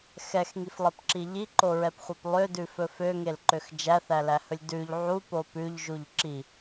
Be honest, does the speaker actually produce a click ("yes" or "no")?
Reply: yes